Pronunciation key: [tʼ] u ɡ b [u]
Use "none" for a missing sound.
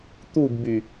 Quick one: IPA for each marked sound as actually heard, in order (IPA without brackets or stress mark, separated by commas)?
t̪, y